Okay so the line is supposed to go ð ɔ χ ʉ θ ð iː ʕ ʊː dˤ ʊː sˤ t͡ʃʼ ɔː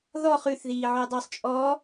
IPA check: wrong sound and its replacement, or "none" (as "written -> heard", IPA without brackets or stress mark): none